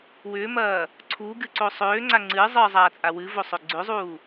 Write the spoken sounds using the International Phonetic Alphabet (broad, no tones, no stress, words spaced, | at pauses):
wʏːmɐː | ǀʰuːɡɨǀo sˤøːŋ͡ǀa ŋ͡ǀɨːzˤɨːzˤaːt͡sʼa wɨvosˤø ɡ͡ǀøzˤuː